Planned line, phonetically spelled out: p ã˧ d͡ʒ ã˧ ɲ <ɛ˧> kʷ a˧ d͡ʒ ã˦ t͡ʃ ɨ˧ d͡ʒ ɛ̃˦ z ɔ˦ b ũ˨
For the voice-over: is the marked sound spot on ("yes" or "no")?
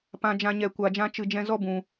yes